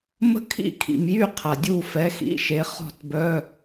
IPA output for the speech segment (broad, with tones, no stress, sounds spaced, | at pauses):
m ə̤˥ kʰ ḭ˥˩ kʰ ḭ˩ m j y˥˩ qʰ a˩ dʲ u˥˩ f ɛ˨˥ x ḭ˧˥˧ ʃ e˨˥ χ ɔ̤˥˩ t b œ˧˥˧